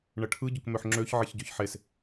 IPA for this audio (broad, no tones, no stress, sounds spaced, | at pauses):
ɳ ə ʈʰ ɯ ɟ ʊ k m ø ħ ŋ͡ǁ ø ç ʕ e ç ɟ ø ç ħ e s